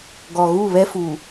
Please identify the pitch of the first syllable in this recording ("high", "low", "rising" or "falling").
low